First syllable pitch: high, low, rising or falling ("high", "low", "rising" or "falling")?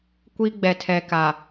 high